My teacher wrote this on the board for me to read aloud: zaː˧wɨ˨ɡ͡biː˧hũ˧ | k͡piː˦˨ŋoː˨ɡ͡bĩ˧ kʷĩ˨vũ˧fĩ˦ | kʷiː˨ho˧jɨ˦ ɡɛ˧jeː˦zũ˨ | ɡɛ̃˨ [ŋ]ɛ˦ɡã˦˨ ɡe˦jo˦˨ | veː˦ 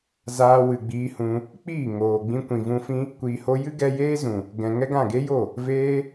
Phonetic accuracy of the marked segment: correct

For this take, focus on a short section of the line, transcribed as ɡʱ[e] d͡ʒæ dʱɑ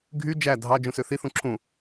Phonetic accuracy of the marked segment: incorrect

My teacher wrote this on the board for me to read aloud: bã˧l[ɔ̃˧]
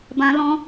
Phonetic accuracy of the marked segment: correct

